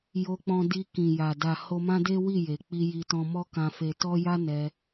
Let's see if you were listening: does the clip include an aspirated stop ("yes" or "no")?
no